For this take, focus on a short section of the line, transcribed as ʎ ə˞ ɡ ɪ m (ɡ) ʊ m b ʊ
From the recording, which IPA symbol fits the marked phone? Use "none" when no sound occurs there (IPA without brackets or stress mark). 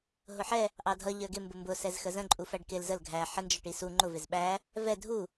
b